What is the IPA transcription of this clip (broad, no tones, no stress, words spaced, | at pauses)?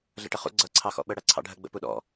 ɮə̰ʈəχṵ ɡ͡ǀʌ ǀʰɑxɔ̰ɓə ɽæǀʰɑ̰ɖʱə ɡ͡bə̰puɗɔ̰